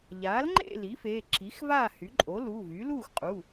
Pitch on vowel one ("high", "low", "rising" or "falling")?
rising